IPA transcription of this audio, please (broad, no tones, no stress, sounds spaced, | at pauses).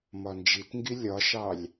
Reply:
m ɒ n d͡ʒ i t ŋ ɡ i lʲ ɒ ʃ ɑ lʲ